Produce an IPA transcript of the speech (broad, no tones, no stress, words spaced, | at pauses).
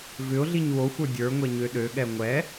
vʏʊ̯ɮiɲ woxʷə˞ dʲə˞ŋʷɛ ɲøɗøɠɛ ŋʷɛ